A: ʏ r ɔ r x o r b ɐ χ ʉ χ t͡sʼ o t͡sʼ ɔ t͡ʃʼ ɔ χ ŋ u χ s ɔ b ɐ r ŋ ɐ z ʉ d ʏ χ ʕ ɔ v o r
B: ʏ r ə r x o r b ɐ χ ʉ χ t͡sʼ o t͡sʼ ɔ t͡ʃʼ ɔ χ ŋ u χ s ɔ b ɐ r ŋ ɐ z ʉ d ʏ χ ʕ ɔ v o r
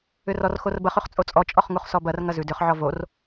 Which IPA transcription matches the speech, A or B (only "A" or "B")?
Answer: A